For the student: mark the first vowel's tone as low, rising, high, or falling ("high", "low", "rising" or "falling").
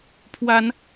rising